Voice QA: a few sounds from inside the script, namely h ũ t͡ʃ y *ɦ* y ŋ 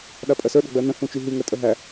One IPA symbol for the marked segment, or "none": ɦ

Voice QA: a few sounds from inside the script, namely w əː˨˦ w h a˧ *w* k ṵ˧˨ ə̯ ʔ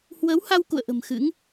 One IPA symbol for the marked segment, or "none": w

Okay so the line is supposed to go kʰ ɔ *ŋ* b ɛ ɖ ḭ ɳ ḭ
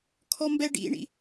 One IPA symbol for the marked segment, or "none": m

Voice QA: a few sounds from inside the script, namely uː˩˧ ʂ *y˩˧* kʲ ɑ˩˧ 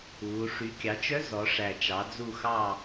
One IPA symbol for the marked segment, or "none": y˩˧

